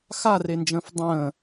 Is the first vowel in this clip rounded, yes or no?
no